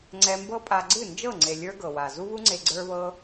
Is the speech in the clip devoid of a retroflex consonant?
yes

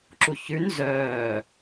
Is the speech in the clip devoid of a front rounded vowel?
no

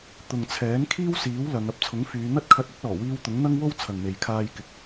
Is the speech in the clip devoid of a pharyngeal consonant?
yes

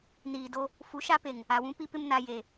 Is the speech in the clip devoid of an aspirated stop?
yes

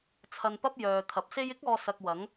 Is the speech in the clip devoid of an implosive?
yes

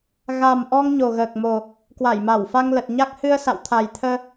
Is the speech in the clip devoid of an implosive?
yes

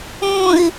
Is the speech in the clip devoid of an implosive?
yes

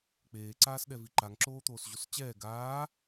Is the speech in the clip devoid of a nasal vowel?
yes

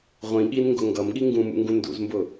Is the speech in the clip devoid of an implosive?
no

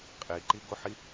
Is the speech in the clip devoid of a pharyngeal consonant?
no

